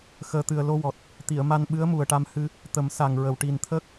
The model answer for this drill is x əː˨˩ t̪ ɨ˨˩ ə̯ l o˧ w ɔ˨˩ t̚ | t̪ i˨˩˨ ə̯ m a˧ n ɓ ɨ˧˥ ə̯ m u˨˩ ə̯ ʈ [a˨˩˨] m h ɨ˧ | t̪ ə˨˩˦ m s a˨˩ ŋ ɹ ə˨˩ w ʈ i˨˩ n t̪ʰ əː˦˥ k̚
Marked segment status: incorrect: a˧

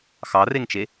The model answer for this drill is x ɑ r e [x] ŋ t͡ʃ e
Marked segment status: incorrect: none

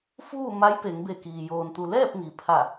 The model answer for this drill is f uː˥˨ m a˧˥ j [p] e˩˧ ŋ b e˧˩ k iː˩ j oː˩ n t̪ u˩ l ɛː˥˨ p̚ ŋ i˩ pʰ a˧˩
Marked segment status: correct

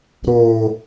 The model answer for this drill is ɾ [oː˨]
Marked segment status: correct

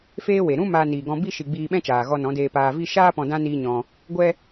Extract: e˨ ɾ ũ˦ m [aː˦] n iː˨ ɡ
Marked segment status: incorrect: aː˧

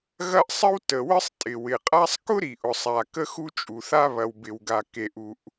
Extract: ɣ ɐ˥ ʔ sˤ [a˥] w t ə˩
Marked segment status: incorrect: ə˥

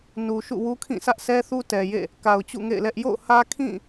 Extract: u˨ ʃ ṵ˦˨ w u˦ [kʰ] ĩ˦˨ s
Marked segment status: correct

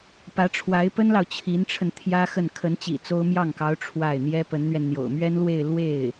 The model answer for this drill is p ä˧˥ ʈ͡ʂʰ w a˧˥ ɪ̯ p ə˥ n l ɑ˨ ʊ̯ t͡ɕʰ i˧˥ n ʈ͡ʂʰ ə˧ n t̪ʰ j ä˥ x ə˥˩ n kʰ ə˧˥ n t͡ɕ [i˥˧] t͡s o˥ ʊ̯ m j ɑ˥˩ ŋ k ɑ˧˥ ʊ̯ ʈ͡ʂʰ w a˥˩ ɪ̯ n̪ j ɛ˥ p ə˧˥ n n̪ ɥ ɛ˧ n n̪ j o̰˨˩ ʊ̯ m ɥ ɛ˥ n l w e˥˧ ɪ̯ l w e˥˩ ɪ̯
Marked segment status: incorrect: ḭ˨˩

